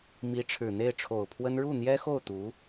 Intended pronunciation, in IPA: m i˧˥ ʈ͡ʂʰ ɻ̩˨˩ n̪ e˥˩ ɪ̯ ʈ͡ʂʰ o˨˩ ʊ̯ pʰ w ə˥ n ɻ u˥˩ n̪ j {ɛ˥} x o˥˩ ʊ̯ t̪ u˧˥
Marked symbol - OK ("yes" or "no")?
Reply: yes